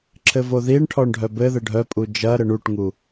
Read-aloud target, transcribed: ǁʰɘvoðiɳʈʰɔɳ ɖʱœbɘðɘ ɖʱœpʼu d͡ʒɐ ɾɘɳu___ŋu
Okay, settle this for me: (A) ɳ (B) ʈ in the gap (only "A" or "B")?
B